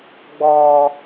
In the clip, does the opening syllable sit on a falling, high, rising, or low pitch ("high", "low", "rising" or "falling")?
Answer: low